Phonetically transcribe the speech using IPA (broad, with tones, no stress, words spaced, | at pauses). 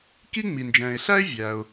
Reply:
ki˥ŋ͡mi˩nd͡ʒɛ̃ː˩ɪ̯ ɬæ˥ɪ̯ vʲæ˩ʊ̯